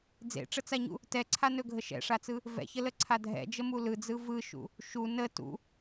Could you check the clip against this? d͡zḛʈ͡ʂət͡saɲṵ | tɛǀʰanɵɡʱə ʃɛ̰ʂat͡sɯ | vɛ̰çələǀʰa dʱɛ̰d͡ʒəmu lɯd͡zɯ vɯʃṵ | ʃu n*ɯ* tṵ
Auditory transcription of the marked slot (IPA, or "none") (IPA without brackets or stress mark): ə